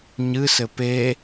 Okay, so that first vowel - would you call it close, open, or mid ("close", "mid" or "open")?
close